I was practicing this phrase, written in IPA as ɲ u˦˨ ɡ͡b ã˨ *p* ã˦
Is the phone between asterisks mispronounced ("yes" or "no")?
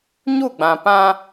no